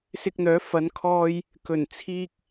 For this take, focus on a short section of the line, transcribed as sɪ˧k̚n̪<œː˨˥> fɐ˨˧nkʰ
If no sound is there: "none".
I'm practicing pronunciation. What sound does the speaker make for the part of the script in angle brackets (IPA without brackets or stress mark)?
œː˨˥